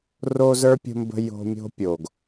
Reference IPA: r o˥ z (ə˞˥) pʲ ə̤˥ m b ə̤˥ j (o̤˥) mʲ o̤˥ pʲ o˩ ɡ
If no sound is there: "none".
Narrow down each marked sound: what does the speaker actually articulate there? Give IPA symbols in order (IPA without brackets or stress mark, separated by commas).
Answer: ə˞˥, o̤˥